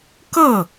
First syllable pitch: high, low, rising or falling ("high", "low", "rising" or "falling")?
falling